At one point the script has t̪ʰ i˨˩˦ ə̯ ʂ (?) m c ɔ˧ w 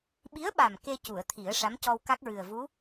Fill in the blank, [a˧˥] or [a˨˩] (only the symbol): a˧˥